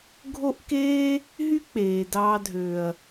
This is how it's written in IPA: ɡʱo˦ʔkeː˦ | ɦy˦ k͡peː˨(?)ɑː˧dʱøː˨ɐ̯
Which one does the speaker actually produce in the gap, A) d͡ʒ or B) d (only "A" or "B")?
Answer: B